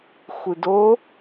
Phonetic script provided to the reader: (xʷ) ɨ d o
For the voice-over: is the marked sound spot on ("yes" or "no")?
yes